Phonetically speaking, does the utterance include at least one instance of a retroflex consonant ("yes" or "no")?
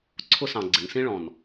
yes